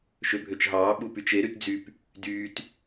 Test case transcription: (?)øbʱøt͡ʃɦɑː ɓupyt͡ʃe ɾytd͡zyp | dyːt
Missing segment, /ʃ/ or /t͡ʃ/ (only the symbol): ʃ